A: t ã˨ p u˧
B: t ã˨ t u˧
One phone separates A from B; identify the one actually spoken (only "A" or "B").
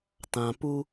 A